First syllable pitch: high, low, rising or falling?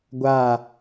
falling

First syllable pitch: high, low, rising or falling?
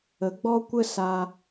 rising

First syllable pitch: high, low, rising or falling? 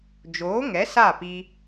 rising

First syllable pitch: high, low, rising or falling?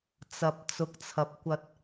rising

